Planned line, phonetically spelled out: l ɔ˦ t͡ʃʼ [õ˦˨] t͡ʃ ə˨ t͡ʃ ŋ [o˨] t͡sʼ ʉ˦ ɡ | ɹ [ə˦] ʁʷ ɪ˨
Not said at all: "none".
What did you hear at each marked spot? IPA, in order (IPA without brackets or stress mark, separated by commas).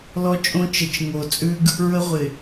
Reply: õ˦, o˨, ə˦